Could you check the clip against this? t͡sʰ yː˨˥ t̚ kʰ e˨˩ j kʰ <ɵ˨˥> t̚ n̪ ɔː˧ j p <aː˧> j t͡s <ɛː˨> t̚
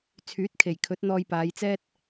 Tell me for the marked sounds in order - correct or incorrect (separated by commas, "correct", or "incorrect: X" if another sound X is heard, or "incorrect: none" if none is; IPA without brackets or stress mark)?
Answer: correct, incorrect: aː˨˧, incorrect: ɛː˥